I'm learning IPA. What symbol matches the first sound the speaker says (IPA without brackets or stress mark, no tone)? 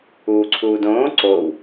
uː